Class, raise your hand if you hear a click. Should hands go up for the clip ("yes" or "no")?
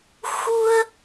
no